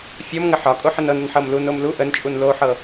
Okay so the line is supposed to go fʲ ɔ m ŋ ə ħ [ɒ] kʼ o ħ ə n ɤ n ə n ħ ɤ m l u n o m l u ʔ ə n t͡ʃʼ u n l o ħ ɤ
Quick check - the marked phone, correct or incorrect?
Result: correct